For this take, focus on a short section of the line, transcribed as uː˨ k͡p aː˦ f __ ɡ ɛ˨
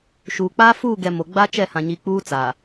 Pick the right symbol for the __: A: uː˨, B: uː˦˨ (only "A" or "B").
B